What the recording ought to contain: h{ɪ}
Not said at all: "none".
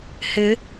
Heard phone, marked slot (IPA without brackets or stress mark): ɪ